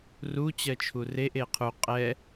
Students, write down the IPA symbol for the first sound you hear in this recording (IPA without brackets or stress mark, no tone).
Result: r